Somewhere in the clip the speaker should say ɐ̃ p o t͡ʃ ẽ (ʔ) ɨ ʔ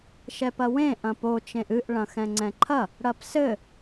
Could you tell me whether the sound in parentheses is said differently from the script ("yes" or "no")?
no